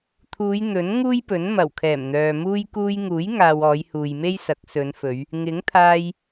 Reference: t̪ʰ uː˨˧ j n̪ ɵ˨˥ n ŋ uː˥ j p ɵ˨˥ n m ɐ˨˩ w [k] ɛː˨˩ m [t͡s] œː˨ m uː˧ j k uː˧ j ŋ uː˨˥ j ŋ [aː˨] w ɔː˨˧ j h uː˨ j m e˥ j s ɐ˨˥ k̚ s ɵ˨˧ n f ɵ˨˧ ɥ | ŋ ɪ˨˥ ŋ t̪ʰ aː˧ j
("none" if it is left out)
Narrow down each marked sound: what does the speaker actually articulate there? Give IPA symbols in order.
kʰ, n̪, aː˨

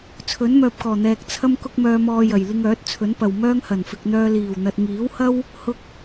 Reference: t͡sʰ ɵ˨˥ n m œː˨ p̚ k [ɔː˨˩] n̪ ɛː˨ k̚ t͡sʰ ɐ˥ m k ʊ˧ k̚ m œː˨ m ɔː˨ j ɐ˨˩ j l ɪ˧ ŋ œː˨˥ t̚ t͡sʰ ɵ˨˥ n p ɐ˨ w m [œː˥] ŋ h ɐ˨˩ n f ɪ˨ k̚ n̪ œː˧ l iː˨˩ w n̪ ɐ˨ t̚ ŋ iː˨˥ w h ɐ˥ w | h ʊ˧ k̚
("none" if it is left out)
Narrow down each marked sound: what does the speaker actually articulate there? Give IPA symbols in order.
ɔː˨˩, œː˥

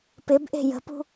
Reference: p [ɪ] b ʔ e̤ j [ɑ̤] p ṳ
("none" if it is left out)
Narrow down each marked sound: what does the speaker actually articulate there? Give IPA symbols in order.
ɪ, ə̤

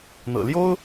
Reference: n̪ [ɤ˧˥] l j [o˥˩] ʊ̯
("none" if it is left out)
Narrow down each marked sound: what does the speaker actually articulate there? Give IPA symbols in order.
ɤ̰˨˩, o˥

